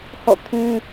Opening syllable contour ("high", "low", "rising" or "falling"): falling